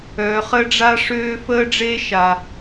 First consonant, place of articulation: uvular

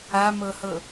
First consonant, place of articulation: labial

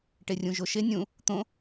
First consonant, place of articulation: retroflex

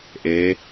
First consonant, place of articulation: glottal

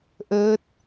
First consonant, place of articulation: glottal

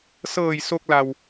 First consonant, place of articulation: alveolar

